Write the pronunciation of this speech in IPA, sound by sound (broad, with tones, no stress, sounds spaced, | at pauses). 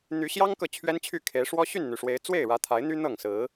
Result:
n̪ y˨˦ ɕ j ɑ˦ ŋ k ɤ˨ t͡ɕʰ ɥ ɛ˦ n t͡ɕʰ y˥˨ kʰ e˨˦ ɪ̯ ʂ w ɔ˦ ɕ y˥˨ n n̪ y˩ ʂ w e˨˦ ɪ̯ t͡s w e˥˨ ɪ̯ ɻ ä˨˦ t̪ʰ a˨˦ ɪ̯ n̪ y˦ n̪ ɤ˥˨ ŋ s ɹ̩˨˦